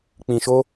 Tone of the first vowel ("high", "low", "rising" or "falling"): low